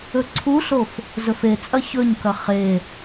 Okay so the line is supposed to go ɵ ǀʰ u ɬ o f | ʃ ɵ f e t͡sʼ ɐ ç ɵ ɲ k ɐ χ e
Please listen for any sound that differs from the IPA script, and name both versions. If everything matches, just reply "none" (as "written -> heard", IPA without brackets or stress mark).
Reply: ʃ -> z